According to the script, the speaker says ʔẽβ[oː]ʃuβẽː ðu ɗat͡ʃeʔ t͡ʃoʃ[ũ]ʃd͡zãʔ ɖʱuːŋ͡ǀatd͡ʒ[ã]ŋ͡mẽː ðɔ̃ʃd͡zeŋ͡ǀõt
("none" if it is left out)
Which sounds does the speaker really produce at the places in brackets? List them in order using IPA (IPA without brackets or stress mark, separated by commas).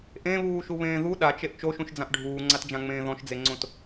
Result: uː, ũ, ã